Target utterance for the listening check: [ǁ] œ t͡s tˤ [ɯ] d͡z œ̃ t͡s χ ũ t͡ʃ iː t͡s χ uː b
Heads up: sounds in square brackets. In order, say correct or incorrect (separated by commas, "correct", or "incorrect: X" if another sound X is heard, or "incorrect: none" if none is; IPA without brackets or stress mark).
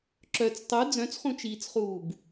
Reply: correct, correct